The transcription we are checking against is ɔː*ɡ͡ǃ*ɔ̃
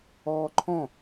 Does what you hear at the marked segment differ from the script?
yes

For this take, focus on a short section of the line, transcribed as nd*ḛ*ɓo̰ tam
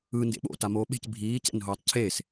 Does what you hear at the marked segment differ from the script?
no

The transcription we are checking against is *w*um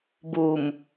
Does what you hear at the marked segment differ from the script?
yes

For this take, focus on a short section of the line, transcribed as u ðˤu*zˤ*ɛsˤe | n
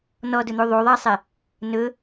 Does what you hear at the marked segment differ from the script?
yes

